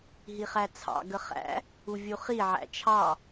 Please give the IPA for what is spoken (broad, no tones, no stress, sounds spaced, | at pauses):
ɦ i χ æ t͡sʰ ɑ̰ ɡ ə χ æ̰ | u vʲ u χ i ʕ æ̰ t͡ʃʰ ɑ